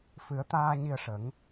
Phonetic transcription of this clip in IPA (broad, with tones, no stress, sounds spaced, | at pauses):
f ɨ˨˩˦ ə̯ t̪ aː˧ ɲ i˧ ə̯ ʂ ə˨˩˦ ŋ